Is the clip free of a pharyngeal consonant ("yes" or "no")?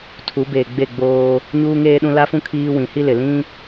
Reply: yes